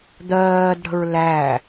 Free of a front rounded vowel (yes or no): yes